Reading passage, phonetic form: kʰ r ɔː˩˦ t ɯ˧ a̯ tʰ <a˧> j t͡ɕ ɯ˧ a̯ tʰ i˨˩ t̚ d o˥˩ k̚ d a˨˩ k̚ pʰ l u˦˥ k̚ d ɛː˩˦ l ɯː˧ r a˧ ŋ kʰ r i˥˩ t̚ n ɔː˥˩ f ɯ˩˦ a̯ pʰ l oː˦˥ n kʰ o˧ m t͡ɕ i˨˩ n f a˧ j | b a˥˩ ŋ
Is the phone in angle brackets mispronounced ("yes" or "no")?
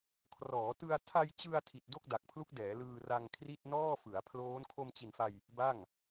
no